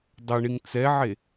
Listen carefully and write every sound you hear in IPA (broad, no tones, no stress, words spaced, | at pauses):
dˤɐɳiŋ t͡sɛʕe